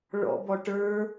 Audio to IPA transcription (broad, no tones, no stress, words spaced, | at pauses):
ɭɔ̰bɔ ʈə˞